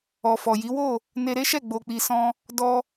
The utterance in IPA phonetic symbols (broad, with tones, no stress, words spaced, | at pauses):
ɔ˨fɔ˨ji˨˦wo˦˨ | ne˧ɾe˦ʃɛ˦˨ ɡ͡bo˧k͡pi˧sɔ̃˦ | dɔ˧